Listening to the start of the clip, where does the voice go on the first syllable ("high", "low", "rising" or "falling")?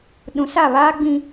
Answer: low